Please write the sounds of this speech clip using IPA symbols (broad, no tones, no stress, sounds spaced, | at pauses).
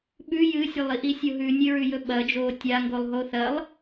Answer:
ɓ ʉ j ɨ sʲ ɐ lˠ i ʔ i sʲ o ɦ ʉ nʲ ɨ ɹ ʉ j ɵ ɓ ɐ d͡ʒ oː tʲ a ŋ ɡ o lˠ ɦ o θ ɐ lˠ